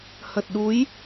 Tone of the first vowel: low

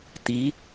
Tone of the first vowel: rising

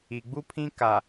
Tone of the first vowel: low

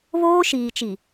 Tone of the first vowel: high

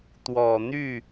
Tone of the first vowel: low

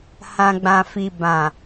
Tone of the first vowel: low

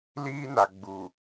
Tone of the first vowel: high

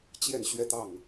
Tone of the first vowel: falling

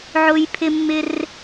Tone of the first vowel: high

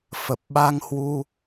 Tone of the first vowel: low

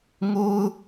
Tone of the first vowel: high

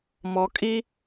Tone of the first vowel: low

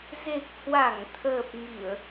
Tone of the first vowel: low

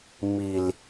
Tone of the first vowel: low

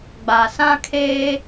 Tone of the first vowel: low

